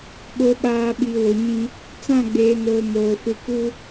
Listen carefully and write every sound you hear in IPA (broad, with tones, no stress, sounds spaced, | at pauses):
ɓ o˨ ɓ aː˨ ɓ i˨ w o˨ ɲ ĩ˦ | t͡s ã˦˨ ɡ͡b eː˨ n oː˨ m oː˨ f ɪ˦ k u˦